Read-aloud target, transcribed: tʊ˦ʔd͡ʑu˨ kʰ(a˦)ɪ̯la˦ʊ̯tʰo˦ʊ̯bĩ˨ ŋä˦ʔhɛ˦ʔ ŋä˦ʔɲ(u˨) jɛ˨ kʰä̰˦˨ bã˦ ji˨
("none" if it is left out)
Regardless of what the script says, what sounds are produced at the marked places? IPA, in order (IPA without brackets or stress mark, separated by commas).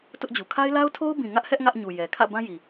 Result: a˦, u˨